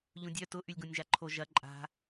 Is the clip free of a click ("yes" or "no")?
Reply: no